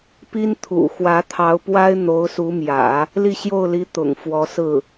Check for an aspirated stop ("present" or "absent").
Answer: present